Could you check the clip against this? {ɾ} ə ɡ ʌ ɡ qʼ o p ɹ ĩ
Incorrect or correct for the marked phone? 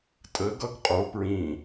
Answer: incorrect: tʼ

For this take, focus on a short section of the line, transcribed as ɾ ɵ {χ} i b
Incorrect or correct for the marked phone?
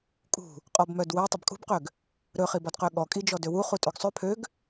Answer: correct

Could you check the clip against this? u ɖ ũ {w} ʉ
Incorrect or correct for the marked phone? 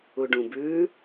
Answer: incorrect: b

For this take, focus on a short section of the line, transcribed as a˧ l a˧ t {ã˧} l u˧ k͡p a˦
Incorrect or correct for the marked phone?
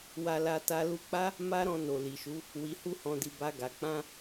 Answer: incorrect: a˧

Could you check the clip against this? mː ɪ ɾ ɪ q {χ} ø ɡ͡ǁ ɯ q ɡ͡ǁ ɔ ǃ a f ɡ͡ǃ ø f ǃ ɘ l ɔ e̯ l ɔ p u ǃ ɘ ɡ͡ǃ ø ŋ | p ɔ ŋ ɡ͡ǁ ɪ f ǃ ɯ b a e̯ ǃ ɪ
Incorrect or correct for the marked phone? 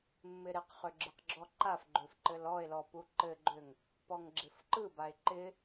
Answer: correct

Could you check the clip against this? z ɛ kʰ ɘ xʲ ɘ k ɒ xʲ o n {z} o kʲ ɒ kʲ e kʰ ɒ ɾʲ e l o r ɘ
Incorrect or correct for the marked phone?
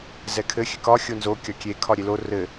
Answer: correct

